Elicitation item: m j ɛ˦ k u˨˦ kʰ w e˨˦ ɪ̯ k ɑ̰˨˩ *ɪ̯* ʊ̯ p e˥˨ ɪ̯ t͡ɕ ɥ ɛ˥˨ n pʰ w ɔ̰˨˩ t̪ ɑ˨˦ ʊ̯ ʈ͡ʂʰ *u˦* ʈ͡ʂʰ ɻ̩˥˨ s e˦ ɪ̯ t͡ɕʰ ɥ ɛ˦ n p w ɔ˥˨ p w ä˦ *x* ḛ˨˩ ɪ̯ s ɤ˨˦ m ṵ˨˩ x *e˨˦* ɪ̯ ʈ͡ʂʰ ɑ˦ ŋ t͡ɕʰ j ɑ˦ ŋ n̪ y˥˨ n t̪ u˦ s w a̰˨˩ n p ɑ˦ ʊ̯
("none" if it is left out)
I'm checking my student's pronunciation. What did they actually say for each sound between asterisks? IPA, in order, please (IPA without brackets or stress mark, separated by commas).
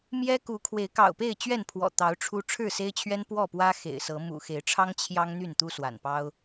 none, u˦, x, e˨˦